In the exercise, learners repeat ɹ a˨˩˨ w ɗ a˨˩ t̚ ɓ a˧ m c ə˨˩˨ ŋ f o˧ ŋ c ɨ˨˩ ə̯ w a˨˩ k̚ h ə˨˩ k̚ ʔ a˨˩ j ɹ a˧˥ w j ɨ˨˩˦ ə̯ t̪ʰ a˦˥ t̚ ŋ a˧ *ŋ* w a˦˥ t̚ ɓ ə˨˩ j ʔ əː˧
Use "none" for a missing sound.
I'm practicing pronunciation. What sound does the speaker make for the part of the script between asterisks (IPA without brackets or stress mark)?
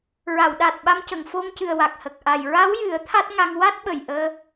ŋ